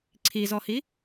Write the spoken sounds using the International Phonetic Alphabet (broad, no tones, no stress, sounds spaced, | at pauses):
ǀʰ i z ɔ h i